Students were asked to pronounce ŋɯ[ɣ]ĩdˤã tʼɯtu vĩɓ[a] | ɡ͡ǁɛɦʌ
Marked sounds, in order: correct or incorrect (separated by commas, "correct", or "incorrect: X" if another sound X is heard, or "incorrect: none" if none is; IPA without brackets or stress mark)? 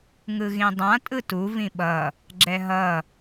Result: correct, incorrect: ʌ